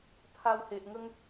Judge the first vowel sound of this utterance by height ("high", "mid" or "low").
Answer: low